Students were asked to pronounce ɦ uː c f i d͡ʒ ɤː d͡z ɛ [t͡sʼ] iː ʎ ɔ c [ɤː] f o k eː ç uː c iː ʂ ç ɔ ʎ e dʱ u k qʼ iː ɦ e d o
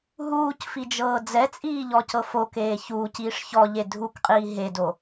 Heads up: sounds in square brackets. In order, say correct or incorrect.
correct, incorrect: ɤ

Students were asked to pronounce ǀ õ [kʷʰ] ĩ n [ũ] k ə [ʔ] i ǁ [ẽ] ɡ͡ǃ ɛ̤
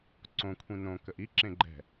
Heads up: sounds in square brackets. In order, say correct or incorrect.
correct, incorrect: õ, correct, correct

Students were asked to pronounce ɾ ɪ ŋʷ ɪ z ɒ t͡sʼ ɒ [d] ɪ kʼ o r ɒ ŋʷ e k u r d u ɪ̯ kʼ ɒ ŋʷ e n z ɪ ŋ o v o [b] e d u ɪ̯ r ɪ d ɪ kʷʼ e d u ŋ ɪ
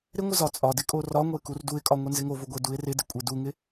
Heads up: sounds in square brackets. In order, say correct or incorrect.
correct, incorrect: ɡʷ

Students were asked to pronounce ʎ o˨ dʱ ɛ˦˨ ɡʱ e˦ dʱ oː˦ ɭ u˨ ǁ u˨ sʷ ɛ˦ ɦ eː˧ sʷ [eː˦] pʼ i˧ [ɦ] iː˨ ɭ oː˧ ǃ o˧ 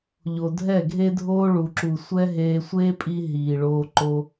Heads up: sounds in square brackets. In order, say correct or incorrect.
correct, correct

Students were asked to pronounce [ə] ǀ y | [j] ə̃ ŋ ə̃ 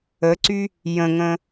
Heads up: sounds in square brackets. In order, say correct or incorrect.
correct, correct

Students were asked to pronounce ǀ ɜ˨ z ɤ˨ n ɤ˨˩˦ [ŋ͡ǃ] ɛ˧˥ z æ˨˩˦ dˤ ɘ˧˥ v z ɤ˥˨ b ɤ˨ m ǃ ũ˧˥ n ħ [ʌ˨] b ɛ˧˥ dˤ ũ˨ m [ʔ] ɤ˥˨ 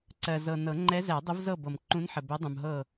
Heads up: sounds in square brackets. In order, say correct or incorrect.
correct, incorrect: ə˨, incorrect: ɦ

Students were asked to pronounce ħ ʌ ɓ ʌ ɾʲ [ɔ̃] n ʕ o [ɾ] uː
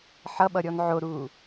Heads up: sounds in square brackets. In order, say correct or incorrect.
incorrect: ɔ, correct

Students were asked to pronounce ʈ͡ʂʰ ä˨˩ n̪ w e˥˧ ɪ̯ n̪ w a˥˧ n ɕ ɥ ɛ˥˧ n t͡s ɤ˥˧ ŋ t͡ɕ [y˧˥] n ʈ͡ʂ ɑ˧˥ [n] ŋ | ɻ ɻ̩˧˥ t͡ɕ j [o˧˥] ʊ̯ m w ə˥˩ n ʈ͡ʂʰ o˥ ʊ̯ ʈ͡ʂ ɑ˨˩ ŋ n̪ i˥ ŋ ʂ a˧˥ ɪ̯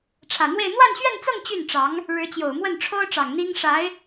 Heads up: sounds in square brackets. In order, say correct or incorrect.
incorrect: y˥˩, incorrect: none, incorrect: o˨˩

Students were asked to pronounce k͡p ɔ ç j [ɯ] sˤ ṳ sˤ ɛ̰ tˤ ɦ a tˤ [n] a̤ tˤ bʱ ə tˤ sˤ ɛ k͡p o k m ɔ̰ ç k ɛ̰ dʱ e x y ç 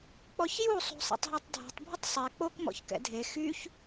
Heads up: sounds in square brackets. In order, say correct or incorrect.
incorrect: u, incorrect: dʱ

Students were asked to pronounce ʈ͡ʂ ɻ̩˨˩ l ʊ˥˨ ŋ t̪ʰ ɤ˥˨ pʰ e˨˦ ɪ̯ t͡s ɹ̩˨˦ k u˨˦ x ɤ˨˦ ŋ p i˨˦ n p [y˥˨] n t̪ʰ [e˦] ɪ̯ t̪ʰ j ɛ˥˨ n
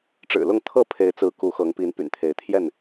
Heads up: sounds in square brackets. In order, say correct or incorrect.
incorrect: y̰˨˩, incorrect: e˨˦

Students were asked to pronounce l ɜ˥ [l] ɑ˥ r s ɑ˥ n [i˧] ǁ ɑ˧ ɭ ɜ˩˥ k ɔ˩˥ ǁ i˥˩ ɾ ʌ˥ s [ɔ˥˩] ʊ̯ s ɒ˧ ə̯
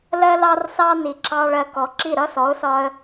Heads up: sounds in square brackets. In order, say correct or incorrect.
correct, incorrect: i˩, incorrect: ɔ˩˥

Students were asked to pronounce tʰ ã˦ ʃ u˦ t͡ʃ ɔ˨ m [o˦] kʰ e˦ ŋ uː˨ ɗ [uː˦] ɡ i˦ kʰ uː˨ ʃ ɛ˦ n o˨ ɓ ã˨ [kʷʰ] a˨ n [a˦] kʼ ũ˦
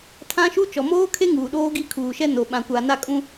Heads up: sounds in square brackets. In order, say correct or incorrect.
incorrect: oː˦, incorrect: oː˦, incorrect: kʷ, correct

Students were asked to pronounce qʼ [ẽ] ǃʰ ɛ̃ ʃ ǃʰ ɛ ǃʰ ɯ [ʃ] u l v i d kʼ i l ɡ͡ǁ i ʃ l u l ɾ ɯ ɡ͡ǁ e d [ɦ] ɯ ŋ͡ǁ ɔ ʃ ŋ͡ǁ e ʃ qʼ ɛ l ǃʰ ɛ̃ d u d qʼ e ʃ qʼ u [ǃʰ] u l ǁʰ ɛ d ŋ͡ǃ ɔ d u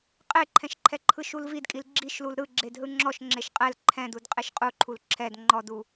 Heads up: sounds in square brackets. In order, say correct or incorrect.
incorrect: e, correct, correct, correct

